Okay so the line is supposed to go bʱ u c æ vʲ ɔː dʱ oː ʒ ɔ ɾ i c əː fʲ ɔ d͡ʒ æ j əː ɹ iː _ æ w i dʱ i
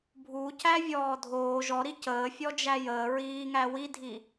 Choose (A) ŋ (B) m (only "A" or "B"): A